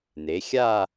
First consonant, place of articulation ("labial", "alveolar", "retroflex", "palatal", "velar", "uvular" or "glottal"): alveolar